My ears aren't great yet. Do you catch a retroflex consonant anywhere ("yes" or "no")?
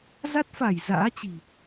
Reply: no